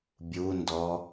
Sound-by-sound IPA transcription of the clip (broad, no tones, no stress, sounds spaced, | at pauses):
bʲ u n d ɔ